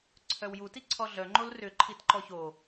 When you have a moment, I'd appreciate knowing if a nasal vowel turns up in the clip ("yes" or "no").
no